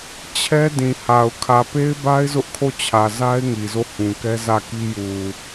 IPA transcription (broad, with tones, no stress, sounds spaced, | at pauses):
t͡ɕʰ ɛ˦ d ĩ˨ h a˨ ʊ̯ kʰ ä˨ p e˦ ɪ̯ b a˦ ɪ̯ z ʊ˦ ʔ kʰ o˦˨ t͡ɕʰ ä˨ z a˦ ɪ̯ ŋ i˨ z o˦˨ h ũ˨ k ɛ˦ z ä˦˨ k i˦ j u˨